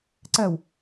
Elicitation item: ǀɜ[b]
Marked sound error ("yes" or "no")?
yes